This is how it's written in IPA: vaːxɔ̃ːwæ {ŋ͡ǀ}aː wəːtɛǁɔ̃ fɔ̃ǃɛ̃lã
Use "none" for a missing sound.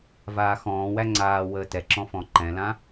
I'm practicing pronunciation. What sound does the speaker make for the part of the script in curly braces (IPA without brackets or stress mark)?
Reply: ŋ͡ǀ